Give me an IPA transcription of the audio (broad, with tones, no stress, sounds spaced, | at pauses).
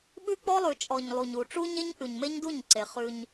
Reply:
ɓ ʉ˦ k͡p ɔ˦ lˠ ʉ˨ t͡ʃʼ ɔ˨ ɲ lˠ u˨ ɲ u˨ ʈ͡ʂ u˦ ɲ e˦ ɲ ʔ ʉ˨ ɲ m e˦ ɲ d u˦˨ ɲ ǀ e˨ χ ʉ˦ ɲ